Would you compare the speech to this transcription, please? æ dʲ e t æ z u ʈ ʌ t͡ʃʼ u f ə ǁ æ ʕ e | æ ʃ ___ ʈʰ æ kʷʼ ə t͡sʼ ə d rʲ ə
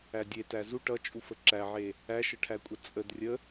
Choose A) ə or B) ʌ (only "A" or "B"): A